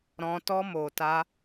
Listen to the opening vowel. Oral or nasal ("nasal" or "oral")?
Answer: nasal